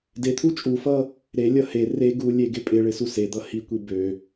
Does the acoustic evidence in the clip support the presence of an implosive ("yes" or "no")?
no